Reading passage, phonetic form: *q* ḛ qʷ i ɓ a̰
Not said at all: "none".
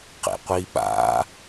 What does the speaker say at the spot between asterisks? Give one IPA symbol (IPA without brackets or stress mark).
q